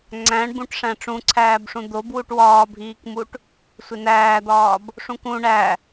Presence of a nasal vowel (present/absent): present